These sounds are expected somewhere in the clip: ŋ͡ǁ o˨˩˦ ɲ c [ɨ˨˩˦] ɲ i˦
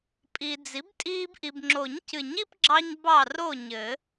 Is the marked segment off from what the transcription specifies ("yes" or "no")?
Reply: no